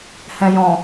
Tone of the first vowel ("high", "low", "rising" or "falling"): low